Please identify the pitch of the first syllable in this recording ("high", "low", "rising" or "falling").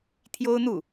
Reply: high